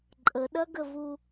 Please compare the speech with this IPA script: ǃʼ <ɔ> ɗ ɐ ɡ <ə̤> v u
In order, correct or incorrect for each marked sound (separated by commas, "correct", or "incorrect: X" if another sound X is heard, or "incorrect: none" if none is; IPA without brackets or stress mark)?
incorrect: ə, incorrect: ə